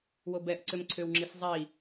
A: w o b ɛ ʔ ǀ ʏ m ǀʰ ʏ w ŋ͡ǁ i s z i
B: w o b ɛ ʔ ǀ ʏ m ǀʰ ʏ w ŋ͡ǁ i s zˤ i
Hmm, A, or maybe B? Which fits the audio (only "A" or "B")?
B